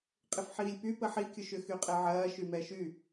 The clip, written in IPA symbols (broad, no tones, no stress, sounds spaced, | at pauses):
qʼ ɪ f ħ iː lʲ p y p ə ħ i kʲ ʊ ʃ ʏ x y qʼ ɛ ʕ ɐː ʃ y m ɛ ʃ y